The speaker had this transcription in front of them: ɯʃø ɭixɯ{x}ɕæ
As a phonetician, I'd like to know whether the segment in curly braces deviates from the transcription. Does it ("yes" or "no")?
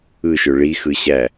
yes